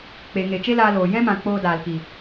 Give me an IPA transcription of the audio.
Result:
k͡p e˨ ŋ e˨ t͡ʃ e˦ l aː˧ l oː˨ j ɛ̃˦ m ã˨ k͡p oː˧ d aː˨ l k i˨

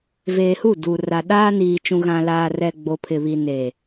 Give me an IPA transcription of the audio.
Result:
v eː˨ h u˦˨ d u˨ r a˨ ɗ aː˦ n iː˨ t͡ʃ ũ˨ ɣ ã˨ l aː˨ r ɛ˨ ɡ͡b o˨ pʰ ɪ˨ β i˨ n eː˨

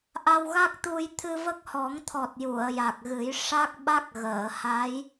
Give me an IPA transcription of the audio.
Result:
ʔ a˧ w ɣ a˦˥ k̚ t̪ u˧ j t̪ʰ ɨ˧ v ə˦˥ k̚ h ɔ˨˩˦ ŋ t̪ʰ ɔ˨˩ t̚ j u˨˩˨ ə̯ j a˨˩ k̚ ɣ ɨ˨˩˦ j ʂ a˦˥ k̚ ɓ a˦˥ k̚ ɣ əː˨˩˨ h a˧˥ j

